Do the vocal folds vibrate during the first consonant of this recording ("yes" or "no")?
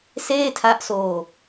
no